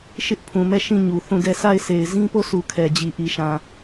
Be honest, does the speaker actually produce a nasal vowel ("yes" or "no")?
yes